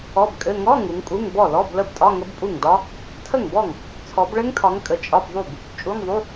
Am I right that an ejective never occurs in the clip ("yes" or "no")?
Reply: no